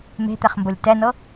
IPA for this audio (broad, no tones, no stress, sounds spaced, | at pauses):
m e̤ t̪ ɛ χ m b o lʲ t ɛ n ɤ